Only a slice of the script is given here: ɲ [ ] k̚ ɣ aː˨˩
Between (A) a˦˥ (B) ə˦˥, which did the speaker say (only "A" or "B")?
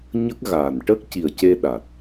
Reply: B